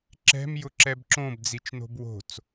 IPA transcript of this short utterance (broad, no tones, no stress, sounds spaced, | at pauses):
ǁ ɛ̤ m j ʊ ǁ ɛ b ǁ õ b d͡z i t͡ʃ n o̤ b w o̤ t͡s